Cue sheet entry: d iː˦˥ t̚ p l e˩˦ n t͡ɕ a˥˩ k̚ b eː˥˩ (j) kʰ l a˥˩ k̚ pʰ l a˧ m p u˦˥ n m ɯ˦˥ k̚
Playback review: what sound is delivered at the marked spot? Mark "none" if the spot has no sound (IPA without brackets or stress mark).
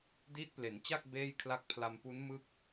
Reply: j